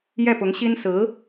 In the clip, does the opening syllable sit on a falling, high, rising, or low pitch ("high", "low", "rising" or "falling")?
falling